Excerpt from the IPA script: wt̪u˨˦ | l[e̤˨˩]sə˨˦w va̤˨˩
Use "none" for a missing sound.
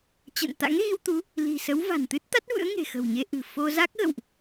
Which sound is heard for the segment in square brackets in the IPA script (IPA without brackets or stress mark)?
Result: i̤˨˩